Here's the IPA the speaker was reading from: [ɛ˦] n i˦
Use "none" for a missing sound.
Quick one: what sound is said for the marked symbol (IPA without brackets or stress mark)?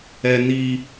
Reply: ɛ˦